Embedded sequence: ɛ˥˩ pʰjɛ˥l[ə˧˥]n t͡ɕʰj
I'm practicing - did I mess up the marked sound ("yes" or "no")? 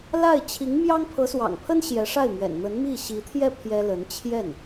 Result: no